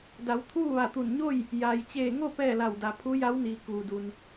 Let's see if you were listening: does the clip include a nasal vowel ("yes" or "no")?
no